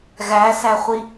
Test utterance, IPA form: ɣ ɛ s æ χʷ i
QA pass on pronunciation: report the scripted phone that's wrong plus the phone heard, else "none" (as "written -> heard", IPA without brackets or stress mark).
ɛ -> æ